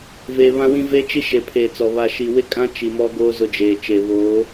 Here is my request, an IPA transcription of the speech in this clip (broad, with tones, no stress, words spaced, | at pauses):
veː˨βã˦wĩ˦ ve˦ t͡ʃi˦ʃe˨pʰeː˨t͡sɔ˨ βa˨ʃi˨wɪ˦kʼã˦ t͡ʃi˨mɔ˦ɡoː˦ zʊ˦d͡ʒeː˨ t͡ʃe˨ βo˨˦